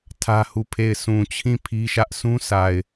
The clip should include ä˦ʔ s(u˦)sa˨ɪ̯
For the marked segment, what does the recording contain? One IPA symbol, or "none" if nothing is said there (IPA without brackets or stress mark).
ũ˦